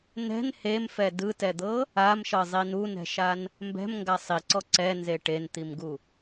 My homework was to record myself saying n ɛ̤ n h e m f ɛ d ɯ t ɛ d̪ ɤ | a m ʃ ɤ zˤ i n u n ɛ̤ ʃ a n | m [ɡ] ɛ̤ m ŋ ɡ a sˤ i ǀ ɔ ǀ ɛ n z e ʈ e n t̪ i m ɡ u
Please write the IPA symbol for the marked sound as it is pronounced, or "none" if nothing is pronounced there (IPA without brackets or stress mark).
b